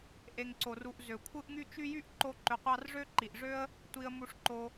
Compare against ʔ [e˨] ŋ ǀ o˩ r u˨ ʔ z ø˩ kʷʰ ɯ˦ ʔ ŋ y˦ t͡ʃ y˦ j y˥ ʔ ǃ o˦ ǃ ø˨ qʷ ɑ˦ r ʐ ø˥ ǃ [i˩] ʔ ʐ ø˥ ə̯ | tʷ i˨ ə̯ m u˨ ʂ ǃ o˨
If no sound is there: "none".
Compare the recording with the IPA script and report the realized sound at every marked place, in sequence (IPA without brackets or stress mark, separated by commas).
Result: e˨, i˩